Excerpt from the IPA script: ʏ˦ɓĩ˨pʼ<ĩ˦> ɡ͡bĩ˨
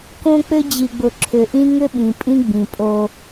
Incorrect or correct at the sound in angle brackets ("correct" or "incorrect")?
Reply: correct